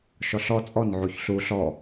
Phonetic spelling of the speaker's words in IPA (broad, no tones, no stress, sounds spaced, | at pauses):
ʃ ɔ ɬ ɔ t͡sʼ ɔ n ʕ u ç ɬ u ɬ ɔ